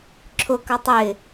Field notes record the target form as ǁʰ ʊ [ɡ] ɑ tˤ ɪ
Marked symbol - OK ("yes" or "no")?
no